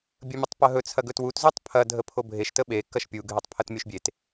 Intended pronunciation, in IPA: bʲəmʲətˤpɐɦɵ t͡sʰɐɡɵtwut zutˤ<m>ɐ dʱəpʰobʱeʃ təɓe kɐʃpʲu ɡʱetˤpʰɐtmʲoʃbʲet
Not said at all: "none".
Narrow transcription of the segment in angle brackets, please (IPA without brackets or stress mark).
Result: pʰ